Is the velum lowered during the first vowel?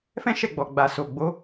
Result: yes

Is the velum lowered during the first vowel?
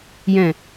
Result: yes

